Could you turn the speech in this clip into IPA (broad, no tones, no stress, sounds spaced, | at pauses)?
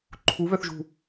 ǃʰ u β œ θ ʒ ṳ